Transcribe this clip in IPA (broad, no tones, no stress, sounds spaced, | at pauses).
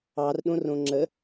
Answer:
ɑ r ɗ õ r õ ŋ͡ǁ ə